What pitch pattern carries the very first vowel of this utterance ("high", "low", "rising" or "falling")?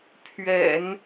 low